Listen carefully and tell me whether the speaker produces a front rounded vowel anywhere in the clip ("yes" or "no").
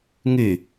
yes